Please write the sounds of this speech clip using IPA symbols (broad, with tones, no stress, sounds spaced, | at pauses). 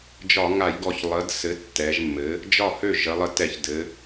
d͡ʒ ɒ˧˩˧ ŋ a˧˩˧ j ɡ ɔ˧˩ ç lˠ ə˩˥ d s ɘ˩˥ tː ɛ˩˧ ʒ mː ɘ˩˥ | d͡ʒ ɒ˥˩ h ø˥˩ ʒ ə˩˧ lˠ ə˧˩ t ɛ˧˩˧ ç d ɘ˩˧